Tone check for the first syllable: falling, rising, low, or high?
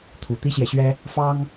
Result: low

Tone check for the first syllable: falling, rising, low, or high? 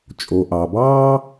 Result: low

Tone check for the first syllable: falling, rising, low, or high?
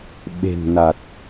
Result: low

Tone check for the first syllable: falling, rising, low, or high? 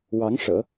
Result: rising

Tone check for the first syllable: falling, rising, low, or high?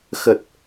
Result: low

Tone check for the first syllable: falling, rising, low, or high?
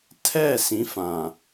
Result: falling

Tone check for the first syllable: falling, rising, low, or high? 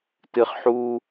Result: high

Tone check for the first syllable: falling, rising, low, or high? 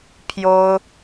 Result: high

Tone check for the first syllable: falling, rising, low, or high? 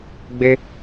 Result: high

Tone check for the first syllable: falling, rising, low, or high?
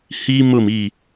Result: high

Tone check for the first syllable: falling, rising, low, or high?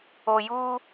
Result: low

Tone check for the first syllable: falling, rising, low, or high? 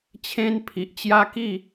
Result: high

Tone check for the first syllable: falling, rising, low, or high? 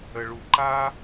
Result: low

